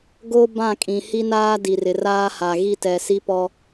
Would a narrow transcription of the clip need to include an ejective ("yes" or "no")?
yes